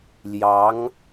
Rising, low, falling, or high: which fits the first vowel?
rising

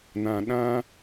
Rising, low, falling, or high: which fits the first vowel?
low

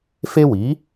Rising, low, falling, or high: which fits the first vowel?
high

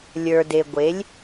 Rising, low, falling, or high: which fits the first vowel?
low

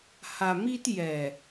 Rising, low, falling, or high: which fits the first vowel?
low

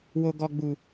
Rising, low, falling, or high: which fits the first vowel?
low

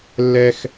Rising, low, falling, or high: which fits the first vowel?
high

